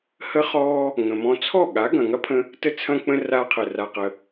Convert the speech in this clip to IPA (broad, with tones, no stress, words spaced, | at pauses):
hə˦χɔː˦ | ŋə̃˨mɔ̃˧ t͡sʰɔ˦˨ɠa˨˦ ɡɐ̃˨ŋɐ˦pʰə̃˦ | tə˦t͡sʰɐ̃˦k͡pə̃˦ ra˧qʰə˨ ra˧qə˧